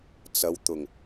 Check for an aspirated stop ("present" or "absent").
absent